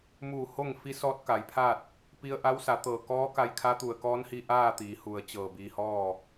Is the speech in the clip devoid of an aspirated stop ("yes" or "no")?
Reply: no